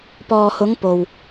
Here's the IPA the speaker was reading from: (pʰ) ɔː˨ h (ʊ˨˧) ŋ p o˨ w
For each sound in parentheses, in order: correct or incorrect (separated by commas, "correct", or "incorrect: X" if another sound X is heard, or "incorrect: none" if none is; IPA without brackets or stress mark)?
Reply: incorrect: p, correct